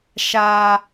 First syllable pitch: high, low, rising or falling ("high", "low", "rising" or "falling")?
high